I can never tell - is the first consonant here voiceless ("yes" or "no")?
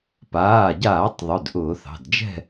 yes